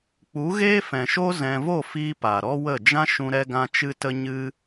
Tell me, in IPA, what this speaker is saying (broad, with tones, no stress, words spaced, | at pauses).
k͡pu˨˦ɣeː˦fɛ̃˨ʃo˦ zɛ̃˧ vo˦˨fiː˧ pa˨ɾɔ˦wə˦˨ d͡ʒã˦ʃũ˧ ɾɛ˦ɡã˦ t͡ʃɨ˦tə˦ ɲɨ˦